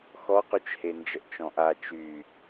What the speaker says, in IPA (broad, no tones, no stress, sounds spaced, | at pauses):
x ɔ q y t͡ʃ h e n d͡ʒ ə ʔ t͡ʃ ɔ̃ ʔ a t͡ʃ y